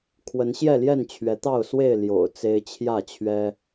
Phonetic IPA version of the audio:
kʰ w ə˨˦ n ɕ j ɛ˥˨ l j ɛ˥˨ n t͡ɕʰ ɥ ɛ˨˦ t̪ ɑ˥˨ ʊ̯ s w e˥˨ ɪ̯ l j o̰˨˩ ʊ̯ t͡s e˦ ɪ̯ t͡ɕʰ j ä˥˨ t͡ɕʰ ɥ ɛ˦

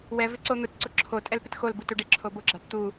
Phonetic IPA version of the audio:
w ɛ v ɪ ǀ o n̪ ʊ t ǀ ʊ ǁʰ o tʼ ɛ l p ɪ t x o l b u t u ɖ ɪ ǁʰ o b ʊ ɡ͡ǁ a t t̪ u

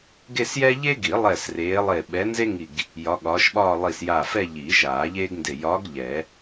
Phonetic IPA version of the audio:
ɡ e˥˧ s j ɛ˥ ʎ e˥ ɡ i˨˩˦ lˠ ɛ˧˩ s r eː˨˦ lˠ e˧˩ ɓ ɛ˨˦ n z e˥ ŋ i˧˩ ɡ | j ɒ˨˦ ɠ ɒː˨˦ ʃ ɓ ɒː˥˧ lˠ i˧˩ s j a˧˩ f ɛ˥˧ ʎ i˨˩˦ ʃ aː˨˩˦ ʎ eː˥ ɡ n d e˧˩ j ɒ˨˦ ɡ ʎ ɛ˨˩˦

